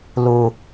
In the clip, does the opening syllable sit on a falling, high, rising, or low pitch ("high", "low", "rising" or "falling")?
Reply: high